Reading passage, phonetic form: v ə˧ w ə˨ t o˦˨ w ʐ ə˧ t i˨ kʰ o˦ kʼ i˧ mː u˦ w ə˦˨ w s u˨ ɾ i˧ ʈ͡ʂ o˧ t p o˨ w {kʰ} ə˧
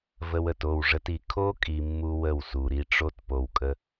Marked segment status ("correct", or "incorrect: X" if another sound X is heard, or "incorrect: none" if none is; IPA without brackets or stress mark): incorrect: kʼ